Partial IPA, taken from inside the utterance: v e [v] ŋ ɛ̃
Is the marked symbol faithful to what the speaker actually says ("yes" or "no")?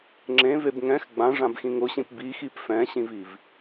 no